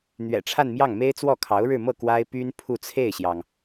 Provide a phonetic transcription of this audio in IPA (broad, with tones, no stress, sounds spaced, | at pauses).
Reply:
n̪ ɥ ɛ̰˨˩ ʈ͡ʂʰ a˥˧ n m j ɑ˥˩ ŋ m e˥ ɪ̯ t͡s w ɔ˥˩ kʰ ɑ˧˥ ʊ̯ ɻ ɻ̩˥˧ m ɤ˥˩ k w a˥ ɪ̯ p y˥ n pʰ u˥˧ t͡sʰ e˥˩ ɪ̯ ɕ j ɑ˩ ŋ